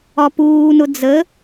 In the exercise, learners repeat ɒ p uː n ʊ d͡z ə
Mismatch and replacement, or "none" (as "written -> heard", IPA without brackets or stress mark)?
none